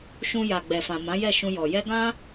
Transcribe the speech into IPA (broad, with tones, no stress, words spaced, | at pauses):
ʃũ˧ ja˨ɡ͡bɛ˨fã˨ mã˨˦jɛ˦˨ʃũ˧ jɔ˨jɛ˧ ɡã˦